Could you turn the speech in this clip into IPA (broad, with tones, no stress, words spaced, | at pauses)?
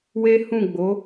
we˦hũ˦˨ ɡ͡bo˨˦